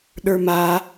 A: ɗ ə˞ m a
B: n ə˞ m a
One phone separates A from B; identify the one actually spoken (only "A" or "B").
A